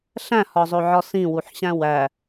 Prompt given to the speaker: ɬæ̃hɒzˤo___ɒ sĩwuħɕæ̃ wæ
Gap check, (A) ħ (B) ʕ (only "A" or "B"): B